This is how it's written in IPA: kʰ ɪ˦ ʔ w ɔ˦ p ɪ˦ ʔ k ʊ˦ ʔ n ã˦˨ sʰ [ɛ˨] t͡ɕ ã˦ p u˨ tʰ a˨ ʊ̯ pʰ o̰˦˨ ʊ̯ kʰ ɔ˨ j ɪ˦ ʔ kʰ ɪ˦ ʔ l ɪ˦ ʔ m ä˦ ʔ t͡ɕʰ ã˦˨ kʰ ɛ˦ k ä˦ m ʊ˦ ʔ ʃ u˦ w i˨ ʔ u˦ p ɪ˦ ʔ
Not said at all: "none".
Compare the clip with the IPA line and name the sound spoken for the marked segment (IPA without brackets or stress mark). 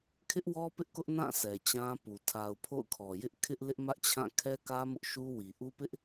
ɛ˨